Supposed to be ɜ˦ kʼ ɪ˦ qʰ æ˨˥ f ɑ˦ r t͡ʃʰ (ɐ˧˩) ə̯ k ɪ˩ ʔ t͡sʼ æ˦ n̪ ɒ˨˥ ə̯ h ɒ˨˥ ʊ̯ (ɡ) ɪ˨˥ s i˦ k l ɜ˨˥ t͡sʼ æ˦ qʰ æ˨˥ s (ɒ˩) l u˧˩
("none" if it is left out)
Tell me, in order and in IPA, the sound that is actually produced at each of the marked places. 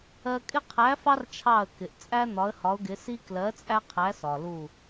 ɑ˧˩, ɡ, ɒ˩

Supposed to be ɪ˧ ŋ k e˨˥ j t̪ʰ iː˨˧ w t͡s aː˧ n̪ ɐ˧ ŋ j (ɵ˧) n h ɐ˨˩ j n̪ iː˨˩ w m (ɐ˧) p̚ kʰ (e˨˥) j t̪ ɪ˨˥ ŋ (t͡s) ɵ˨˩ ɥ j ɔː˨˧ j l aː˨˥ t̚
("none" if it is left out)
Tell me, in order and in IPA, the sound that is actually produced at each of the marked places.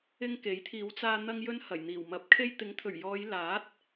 ɵ˧, ɐ˨˥, e˧, t̪ʰ

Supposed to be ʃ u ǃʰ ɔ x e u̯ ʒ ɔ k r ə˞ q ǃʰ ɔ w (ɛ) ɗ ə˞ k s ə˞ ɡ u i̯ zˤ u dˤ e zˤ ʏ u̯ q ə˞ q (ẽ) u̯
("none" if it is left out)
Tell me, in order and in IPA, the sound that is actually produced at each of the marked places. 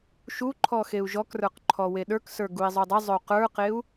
e, e

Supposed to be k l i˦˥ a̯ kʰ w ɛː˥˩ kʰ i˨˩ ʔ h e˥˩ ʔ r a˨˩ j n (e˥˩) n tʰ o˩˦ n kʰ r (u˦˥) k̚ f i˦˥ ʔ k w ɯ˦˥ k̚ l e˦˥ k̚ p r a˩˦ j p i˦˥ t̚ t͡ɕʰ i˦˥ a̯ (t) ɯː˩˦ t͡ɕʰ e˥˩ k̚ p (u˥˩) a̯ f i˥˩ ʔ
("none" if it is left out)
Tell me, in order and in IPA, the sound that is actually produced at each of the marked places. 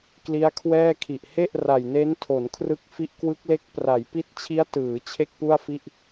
e˦˥, ɯ˦˥, t, u˥˩

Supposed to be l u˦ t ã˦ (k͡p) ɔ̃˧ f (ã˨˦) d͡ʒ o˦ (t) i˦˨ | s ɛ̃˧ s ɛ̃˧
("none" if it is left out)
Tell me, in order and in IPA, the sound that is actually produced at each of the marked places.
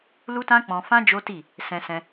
k͡p, ã˦, t

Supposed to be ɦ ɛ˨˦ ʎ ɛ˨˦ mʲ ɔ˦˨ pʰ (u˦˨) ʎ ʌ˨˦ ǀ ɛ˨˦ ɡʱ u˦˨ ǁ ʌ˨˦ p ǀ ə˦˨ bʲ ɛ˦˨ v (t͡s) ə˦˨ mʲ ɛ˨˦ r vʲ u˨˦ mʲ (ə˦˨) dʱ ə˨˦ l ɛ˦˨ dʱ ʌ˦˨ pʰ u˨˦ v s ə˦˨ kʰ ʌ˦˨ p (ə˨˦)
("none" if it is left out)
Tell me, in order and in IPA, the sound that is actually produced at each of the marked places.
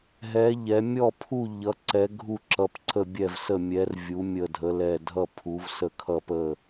u˦˨, s, ə˦˨, ə˦˨

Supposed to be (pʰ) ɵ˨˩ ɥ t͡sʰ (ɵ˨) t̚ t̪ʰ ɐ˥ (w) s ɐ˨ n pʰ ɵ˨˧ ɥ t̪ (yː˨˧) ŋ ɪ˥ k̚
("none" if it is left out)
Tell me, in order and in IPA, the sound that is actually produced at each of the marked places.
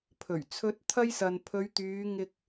pʰ, ɵ˨˥, j, yː˨˧

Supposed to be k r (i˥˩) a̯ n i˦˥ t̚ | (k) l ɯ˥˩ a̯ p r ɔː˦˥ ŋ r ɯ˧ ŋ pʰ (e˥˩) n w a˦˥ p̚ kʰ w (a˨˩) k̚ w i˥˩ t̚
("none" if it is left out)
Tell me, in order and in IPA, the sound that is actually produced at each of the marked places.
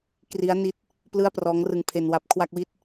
i˦˥, p, e˧, a˥˩

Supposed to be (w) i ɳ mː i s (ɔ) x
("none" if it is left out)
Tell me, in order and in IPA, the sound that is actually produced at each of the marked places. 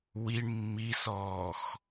w, ɔː

